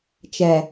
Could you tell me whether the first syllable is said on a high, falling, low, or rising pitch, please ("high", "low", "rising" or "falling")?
low